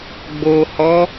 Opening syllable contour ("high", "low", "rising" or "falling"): low